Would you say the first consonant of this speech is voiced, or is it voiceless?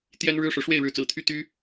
voiceless